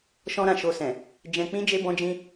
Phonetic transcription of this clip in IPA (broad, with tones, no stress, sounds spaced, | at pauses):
ʃ ɔ̃˦ ɾ ã˦˨ ʃ o˧ s ɛ̃˨ | d͡ʒ ɛ̃˧ k͡p ĩ˦ d͡ʒ e˦ b ɔ̃˦ d͡ʒ ĩ˦